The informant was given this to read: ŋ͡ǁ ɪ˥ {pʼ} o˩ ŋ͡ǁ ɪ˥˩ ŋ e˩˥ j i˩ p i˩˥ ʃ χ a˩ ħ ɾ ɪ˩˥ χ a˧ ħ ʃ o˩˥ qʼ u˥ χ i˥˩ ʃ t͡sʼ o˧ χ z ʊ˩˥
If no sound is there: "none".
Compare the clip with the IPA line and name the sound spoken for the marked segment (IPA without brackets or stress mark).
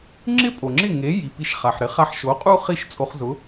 pʼ